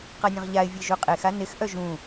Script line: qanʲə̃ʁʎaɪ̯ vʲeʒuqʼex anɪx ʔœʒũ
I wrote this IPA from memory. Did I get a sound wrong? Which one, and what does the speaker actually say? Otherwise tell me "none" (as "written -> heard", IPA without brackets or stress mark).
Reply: none